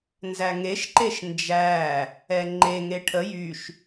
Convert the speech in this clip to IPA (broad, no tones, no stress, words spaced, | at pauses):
nzæŋeʃ ǃeʃnd͡ʒæ | ɛŋ͡ǃe ŋeʈʰə jyʃ